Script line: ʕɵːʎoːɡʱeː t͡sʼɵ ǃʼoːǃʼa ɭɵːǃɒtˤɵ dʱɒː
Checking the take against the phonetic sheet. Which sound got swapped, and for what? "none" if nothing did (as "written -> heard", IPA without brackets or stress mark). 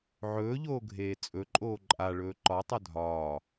none